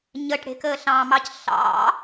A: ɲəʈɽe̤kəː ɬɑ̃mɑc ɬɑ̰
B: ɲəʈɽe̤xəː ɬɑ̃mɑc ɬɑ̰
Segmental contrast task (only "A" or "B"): A